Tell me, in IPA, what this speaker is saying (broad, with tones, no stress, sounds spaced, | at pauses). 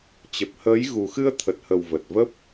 t͡ɕ ə˨˩ p̚ h əː˨˦ j ɣ u˨˩ x ɨ˧ ə̯ t̪ʰ ə˨˩ t̚ h ə˨˩ w v ə˨˩ t̚ v ə˦˥ p̚